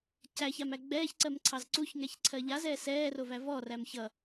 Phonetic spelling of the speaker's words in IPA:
cæçamæ ɡ͡bɛːçǀɜmǀʰɑz ǀuçŋɛçǀʰɜ ʎazɛː sɛːrovæ vɔræm çʌ

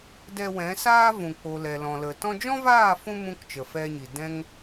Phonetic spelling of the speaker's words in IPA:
dɛ˧wɛ̃˨˦saː˦ vũ˨k͡po˨ lɛ˨lɔ̃˨lə˨ tɔ̃˧d͡ʒɔ̃˦vaː˦˨fũ˧ mũ˦kt͡ʃə˨fɛ˧ɲi˨ dɛ̃˦ŋ

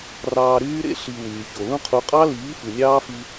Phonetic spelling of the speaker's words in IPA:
rɑː˧ɾyː˦ɾḛ˦ ɬi˧wyː˨ ço˨lũ˦qʰu˧ qʼɑ˦liː˨˦ fɯ˨nʲɑː˦fi˧

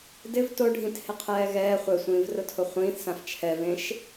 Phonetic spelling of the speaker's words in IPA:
dɪv toɖʱĩthɪqʰɛː ɣɛː χʷɛsʷĩːvrʊtʰʊ χʷĩːθsãf t͡ʃʰɛvẽʃ

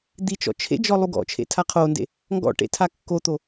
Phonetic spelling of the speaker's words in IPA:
d̪it͡ʃɔ̰ t͡ʃʰḛd͡ʒɔ lˠuɡɔ̰t͡ʃʰḛ tʰaqʰondḛ | ŋɡɔ̰ʈḛ tʰakːot̪o

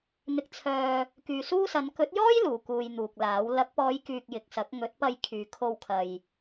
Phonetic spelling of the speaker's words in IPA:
n̪ɪ˨k̚t͡sʰœː˨ | kyː˨suː˥sɐ˨˧n kɵ˨˥t̚jɔː˥j luː˨˩ kuː˧jn̪uː˨k̚laː˨˥w lɐ˨˥k̚pɔː˨˧jkyː˨k̚ jɪ˨k̚sɐ˨˥k̚ ŋɵ˨˥t̚pɐ˧j kʰyː˨˧ kʰo˧wkʰɐ˨j

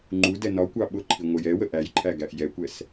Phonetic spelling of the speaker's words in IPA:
ŋ͡ǃudɛ nɒkʷɑ ɓʊǃʰi ŋʷəjɛwə ʔæjǃʰæ ɡæʔjɛkʷɛs

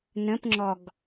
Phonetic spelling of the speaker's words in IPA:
nə̃pŋ͡ǁɔɡ

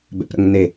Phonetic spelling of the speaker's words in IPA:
bɛ̰pɾə̰ŋne

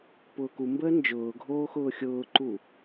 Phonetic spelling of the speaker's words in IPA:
pʊːkumbəː nd͡ʒʊːɡʱoːxʊː xʲʊːǃu

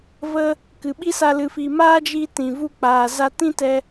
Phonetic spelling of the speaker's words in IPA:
və˦ | kɨ˨ɓi˦sa˧ lɨ˨fi˨maː˦d͡ʒi˧ tĩ˨ vu˧k͡paː˨za˧ tĩ˦tɛ˧

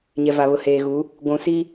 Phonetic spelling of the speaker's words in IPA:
ɲɛ˨va˨βʊ˨ heː˨ɣu˨˦ | ɡʷũ˨si˦

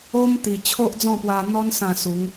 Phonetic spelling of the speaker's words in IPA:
o˦mt̪i˨˩ t͡ɕʰo˦ʔd͡zɔ̃˥˧pwa˧n̪ɔ˦n sã˥˧su˨˦ŋ

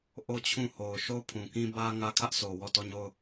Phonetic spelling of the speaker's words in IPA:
ʔo˦t͡ɕʰũ˦˨ho˨ʊ̯ ʃo˦˨ʊ̯pʰũ˨kĩ˦ bä˦ŋä˦ kʰä˦ʔso˨ wɔ˦˨tɔ˦˨ɲo˦˨ʊ̯

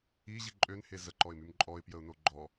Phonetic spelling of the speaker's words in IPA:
iʑi ǃʼønhe zəǃɔɪ̯mym ǃʼɔɪ̯pjəʊ̯no ɡ͡ǃɔ

